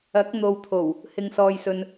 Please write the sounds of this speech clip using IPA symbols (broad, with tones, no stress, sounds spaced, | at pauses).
ɐ˨˥ k̚ n̪ o˨ w t̪ʰ o˨˩ w | h ɪ˧ ŋ s ɔː˧ j s ɵ˧ n